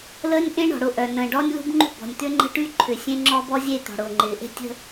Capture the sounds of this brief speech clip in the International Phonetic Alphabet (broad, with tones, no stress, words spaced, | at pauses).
ləː˦nʲʔẽ˦ ɳɔ̤˨ɽʊ˦˨ ʔœ˨ nə̃ː˨ɖɔː˦nʲlṳ˦bŋ͡ǃṳ˦ bɔ̤˨nʲ t̪ʏ˦ŋ͡ǃə̤˦ʈy˦ ǃʰʏ˨ sʲẽ˦ŋ͡ǁɔ˦b ɔ˦zʲe˦˨ t̪ɔ̤˨ɽʊː˨ŋ͡ǃɪː˨ ʔe̤˦tʲə̤˦